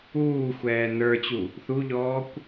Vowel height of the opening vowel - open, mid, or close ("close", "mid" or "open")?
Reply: close